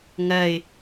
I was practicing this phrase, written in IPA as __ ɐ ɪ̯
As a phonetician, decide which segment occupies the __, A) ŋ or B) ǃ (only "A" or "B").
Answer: A